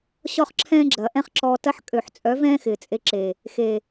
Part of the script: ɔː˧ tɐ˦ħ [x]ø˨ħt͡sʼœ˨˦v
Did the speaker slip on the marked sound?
yes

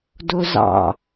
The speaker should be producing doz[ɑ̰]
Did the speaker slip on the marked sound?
no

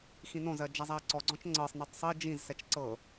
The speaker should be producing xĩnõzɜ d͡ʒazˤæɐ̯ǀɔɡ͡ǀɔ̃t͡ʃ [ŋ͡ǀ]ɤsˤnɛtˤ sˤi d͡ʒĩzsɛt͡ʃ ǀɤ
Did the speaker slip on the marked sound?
no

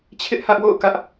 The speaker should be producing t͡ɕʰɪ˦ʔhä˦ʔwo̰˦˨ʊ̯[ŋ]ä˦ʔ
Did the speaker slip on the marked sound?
yes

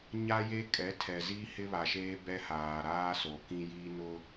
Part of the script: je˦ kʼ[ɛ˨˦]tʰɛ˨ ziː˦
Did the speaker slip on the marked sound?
no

